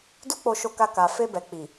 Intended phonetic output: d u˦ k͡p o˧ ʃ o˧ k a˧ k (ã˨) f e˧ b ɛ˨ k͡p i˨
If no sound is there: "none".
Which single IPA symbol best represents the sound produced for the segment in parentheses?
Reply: a˨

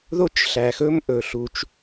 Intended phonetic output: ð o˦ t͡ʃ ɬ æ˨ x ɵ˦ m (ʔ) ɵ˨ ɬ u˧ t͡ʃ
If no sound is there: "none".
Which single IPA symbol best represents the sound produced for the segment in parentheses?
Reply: ʔ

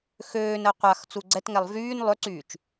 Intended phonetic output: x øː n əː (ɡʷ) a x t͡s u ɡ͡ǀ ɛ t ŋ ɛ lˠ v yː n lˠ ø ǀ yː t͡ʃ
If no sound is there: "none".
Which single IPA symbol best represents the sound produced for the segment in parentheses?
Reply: qʷ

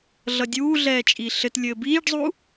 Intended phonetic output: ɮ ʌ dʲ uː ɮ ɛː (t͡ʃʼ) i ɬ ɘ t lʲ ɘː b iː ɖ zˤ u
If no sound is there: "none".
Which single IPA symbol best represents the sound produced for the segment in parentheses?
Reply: t͡ʃʼ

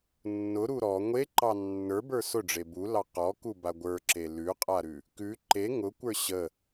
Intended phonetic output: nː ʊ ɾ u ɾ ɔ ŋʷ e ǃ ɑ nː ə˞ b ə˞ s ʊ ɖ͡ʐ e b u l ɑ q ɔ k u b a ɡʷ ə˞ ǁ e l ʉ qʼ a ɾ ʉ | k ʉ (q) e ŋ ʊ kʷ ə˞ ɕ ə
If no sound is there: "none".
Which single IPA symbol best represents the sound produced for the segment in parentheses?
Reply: ǃ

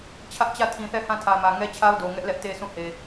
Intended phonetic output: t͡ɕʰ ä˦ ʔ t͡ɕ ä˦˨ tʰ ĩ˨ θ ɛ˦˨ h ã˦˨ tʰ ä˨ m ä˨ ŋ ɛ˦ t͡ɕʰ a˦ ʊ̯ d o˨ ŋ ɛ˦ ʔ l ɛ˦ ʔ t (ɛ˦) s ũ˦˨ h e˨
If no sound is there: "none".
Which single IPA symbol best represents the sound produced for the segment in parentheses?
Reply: e˦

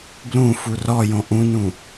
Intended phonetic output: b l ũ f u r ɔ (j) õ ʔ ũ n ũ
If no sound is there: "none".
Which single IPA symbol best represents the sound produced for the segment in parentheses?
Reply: j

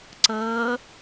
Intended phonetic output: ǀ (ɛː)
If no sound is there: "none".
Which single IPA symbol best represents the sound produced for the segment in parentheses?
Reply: əː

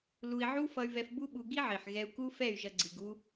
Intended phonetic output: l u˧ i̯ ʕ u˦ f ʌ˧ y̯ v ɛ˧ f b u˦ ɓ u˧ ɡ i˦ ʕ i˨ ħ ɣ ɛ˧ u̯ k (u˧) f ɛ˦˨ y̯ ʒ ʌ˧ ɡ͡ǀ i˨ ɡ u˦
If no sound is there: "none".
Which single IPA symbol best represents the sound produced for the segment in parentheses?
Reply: u˦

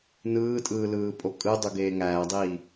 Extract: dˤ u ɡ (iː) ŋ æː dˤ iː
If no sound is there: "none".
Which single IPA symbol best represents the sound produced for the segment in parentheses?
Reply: eː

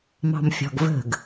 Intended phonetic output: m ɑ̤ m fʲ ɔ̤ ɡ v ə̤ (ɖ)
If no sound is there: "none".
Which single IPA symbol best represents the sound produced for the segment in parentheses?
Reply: ɡ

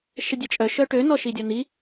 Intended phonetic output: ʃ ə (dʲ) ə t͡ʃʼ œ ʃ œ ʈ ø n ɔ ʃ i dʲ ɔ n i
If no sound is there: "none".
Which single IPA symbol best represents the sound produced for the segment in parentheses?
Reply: dʲ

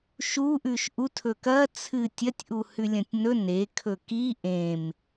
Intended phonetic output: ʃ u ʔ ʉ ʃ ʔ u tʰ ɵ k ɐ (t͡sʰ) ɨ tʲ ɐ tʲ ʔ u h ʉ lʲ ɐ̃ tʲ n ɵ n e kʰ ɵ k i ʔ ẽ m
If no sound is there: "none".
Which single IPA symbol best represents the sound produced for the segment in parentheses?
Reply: t͡sʰ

